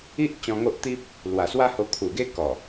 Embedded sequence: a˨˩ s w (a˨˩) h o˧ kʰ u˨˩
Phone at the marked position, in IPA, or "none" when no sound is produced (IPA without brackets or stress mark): a˦